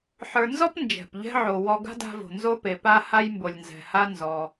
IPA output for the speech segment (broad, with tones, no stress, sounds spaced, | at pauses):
ħ ə˞˨ n z ɔ˥ p n d͡ʒ ɛ̤˩ p ʎ ɛ̤˥ ʕ o˨ w ɔ˦ ɡ a̤˥ d a̤˦ v o̤˩ n z o˦ p e˩ p a˦ h a˥ j m b o˨ lʲ n z ɛ̤˨ h a˥ n z ɔ˨